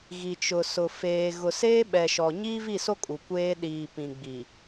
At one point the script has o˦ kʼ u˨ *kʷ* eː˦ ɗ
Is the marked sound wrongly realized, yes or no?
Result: no